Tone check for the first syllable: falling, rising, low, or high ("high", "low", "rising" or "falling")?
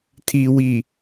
low